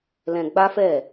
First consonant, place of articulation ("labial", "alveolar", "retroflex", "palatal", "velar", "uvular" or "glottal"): alveolar